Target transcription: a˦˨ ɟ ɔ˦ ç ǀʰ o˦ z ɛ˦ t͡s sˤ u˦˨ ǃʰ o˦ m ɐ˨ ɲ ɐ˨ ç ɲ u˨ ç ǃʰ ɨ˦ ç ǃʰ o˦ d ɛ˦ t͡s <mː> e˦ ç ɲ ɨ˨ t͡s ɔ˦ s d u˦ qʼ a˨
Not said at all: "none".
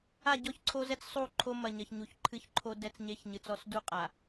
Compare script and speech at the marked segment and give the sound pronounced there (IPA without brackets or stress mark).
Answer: ɲ